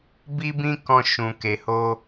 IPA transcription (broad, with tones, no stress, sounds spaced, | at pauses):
b i˦ b ĩ˦ k ɔ̃˧ ʃ ũ˨ k e˨ h o˧